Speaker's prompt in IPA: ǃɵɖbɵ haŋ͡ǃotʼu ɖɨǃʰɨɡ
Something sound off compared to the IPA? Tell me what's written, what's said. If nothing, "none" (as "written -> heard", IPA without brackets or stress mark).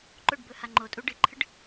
ɡ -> ɖ